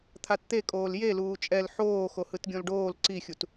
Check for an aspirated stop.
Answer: present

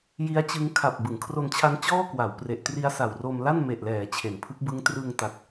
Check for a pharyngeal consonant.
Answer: absent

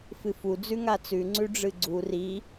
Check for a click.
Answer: present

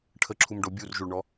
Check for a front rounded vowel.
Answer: absent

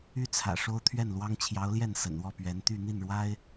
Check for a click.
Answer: absent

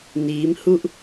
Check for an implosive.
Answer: absent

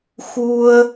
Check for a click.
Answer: absent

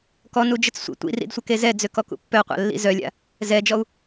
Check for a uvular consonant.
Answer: present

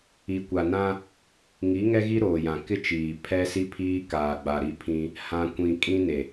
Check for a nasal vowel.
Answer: present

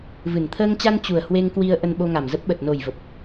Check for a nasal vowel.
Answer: absent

